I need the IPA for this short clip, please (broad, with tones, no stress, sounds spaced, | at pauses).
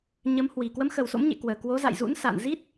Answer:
ɲ ə˨˦ m h w i˨˩ k w ə˨˦ m x ə˨˩ w s o̰˧˥ m ɲ ḛ˧˨ k w əː˨˩ k w o˨˦ z a̰˧˨ j z ṵ˧˥ n s a̰˧˨ n z i˦˥ t̚